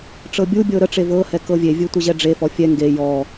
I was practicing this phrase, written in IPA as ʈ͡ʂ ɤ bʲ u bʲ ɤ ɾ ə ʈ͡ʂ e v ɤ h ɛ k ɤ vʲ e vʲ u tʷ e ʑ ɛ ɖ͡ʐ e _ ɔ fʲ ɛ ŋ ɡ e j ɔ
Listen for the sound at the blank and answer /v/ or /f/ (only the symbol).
f